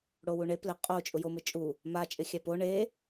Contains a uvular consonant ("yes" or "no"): yes